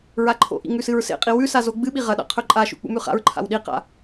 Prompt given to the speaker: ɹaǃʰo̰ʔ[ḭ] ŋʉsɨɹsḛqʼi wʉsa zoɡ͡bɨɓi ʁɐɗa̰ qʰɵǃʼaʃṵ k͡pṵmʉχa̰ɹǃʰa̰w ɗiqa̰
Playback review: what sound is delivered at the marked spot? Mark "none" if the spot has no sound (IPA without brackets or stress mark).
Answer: ḭ